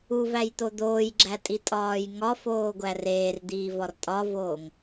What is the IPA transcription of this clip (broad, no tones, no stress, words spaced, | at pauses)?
uvæjt̪o d̪oːjɡ͡ǁætʼi tʼɒːjŋɒfoː ɡʷæreːrd̪iː vɒrtʼɒvoːŋ